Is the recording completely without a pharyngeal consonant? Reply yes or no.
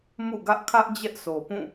yes